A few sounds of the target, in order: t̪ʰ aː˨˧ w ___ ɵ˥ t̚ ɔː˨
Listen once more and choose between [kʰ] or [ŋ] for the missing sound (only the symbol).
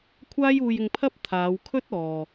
kʰ